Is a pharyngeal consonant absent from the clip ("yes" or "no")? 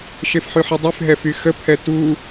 no